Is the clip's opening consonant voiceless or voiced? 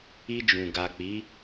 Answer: voiced